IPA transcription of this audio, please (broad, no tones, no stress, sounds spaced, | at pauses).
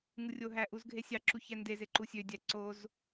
ŋ ɯ rʲ o ɦ æ ʔ u z ɡʱ e sʲ ɑ ǁ u ç æ n d e z e ǃ u sʲ ø dʲ æ ǀ o z